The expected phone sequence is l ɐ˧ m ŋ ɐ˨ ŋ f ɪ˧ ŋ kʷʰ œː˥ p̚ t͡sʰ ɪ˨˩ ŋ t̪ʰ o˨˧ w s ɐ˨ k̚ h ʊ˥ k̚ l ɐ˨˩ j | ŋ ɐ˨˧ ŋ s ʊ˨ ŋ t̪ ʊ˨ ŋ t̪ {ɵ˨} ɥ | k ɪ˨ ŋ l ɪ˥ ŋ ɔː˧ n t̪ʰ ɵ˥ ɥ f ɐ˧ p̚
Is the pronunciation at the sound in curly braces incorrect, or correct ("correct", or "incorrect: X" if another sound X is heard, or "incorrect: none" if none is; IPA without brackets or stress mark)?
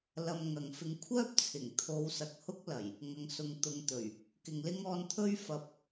incorrect: ɵ˨˩